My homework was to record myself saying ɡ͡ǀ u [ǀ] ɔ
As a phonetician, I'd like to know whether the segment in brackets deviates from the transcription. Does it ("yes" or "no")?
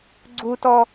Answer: yes